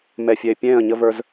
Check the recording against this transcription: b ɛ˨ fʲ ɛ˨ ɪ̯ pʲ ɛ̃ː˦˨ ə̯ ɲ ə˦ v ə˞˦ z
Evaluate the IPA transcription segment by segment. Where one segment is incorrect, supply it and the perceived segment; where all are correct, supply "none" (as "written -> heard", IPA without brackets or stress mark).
b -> m